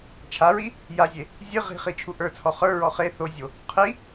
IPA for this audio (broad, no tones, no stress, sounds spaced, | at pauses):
t͡ʃʰ a ɹ i | j a zʲ e | zʲ ɨ ʁ i̤ χ i t͡ʃʰ u ʔ ə˞ t͡sʰ ɔ χ ə˞ ɹ ɔ χ e θ o zʲ o | qʰ i